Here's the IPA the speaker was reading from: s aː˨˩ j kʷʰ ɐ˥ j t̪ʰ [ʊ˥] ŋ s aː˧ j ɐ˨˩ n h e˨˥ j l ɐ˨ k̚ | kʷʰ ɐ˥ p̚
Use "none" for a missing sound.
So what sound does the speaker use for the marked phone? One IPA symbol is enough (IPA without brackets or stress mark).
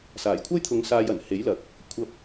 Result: ʊ˨˧